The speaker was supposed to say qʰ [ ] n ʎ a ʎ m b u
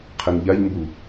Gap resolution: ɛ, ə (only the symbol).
ɛ